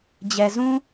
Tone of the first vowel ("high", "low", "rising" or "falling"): low